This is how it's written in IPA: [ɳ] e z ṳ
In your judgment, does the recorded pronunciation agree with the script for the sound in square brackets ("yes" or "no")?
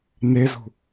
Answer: no